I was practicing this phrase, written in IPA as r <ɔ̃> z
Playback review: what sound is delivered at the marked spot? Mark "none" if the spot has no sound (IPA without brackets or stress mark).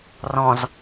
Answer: ɔ̃